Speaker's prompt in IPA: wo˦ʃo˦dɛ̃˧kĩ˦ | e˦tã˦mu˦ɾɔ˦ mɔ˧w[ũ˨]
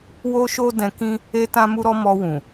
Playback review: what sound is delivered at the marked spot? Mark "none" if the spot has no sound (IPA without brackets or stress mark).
ũ˨